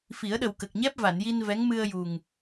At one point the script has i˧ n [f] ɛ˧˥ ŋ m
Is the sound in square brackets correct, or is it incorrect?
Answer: incorrect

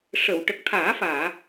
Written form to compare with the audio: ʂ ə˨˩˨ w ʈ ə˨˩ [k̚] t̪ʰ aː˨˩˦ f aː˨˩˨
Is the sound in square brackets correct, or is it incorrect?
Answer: correct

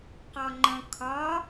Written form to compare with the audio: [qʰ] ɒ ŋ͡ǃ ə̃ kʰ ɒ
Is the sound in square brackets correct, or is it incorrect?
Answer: incorrect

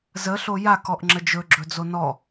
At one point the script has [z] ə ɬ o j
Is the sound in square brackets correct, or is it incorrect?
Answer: correct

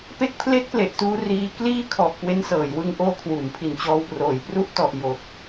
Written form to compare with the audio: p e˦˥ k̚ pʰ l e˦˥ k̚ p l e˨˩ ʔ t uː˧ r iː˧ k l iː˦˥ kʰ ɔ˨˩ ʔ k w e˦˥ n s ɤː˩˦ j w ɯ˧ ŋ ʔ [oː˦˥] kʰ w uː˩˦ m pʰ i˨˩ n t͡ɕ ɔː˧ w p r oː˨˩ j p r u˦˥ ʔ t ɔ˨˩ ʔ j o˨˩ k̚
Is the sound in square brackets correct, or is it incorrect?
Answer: incorrect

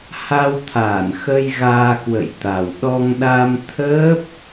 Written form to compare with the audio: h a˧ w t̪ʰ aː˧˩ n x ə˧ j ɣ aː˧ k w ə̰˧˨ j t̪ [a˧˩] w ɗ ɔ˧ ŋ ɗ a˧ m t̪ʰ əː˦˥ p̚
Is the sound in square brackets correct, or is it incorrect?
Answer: incorrect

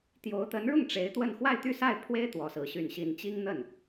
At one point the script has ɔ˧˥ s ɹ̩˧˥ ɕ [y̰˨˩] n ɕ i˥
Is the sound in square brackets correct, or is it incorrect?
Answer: incorrect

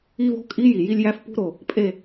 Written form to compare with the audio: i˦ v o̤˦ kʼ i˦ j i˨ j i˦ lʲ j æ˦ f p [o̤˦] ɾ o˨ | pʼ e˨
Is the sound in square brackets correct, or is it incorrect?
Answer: incorrect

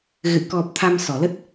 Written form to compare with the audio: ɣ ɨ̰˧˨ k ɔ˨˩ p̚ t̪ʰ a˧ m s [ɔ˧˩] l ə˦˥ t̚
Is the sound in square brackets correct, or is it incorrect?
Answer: correct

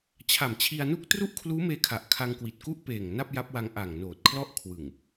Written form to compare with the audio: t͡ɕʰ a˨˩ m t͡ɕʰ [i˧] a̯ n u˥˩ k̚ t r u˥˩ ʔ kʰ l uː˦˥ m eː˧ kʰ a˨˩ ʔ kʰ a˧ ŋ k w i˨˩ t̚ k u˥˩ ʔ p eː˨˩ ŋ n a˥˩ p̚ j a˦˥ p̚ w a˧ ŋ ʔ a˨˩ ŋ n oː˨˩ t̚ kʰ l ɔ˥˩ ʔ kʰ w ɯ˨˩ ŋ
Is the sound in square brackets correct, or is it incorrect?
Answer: correct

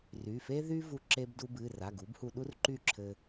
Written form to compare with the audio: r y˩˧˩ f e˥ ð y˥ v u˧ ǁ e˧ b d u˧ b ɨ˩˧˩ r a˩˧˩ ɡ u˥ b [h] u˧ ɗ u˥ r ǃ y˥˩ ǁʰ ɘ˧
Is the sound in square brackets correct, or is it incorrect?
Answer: correct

